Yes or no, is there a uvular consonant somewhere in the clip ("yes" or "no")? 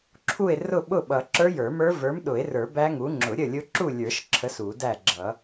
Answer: no